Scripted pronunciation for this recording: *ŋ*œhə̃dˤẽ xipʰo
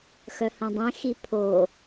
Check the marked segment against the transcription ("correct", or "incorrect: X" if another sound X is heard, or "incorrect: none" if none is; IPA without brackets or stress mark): incorrect: x